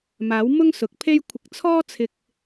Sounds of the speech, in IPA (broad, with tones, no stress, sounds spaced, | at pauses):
m aː˨˥ w m ʊ˥ ŋ s ʊ˨ k̚ pʰ e˥ j kʷʰ ɪ˧ k̚ t͡sʰ ɔː˥ t͡sʰ ɪ˧ k̚